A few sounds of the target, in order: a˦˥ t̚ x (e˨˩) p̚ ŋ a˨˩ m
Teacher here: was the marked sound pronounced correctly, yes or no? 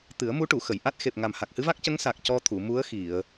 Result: yes